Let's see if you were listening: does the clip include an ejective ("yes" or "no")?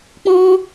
no